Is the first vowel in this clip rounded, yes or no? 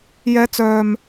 no